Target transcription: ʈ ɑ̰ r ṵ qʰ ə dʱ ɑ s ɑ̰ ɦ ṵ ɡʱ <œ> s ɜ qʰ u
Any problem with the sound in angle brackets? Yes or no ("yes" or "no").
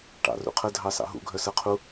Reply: no